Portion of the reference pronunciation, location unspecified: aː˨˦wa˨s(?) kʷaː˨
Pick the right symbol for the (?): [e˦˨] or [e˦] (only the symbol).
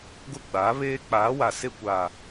e˦˨